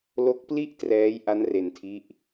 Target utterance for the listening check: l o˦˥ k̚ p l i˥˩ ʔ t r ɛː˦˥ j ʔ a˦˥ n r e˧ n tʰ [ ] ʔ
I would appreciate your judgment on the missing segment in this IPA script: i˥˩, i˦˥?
i˦˥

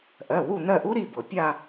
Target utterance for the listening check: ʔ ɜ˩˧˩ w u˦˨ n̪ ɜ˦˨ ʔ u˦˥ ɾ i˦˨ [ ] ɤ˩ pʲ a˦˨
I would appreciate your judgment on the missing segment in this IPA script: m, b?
b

